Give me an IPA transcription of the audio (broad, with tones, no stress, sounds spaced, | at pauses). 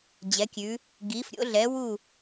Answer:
d͡ʑ ɛ˨˦ kʲ ʉ˨˦ | ɡ iː˨˦ f ɾʲ o̰˨˦ ɮ ɛ˨˦ w u˦˨